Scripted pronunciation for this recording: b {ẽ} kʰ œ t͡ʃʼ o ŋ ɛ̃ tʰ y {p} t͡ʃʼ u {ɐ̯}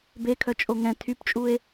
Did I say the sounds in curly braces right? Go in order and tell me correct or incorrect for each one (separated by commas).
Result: incorrect, correct, incorrect